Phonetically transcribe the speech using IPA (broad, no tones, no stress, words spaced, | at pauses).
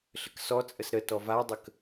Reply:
ɬəksɔ t͡sʼəsɾə tɔvadˤək